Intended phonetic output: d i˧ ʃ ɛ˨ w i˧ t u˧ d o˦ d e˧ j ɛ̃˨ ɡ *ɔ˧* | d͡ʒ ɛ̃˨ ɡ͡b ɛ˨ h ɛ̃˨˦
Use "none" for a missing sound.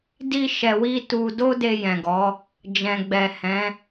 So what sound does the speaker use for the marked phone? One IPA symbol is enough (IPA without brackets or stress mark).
ɔ˨˦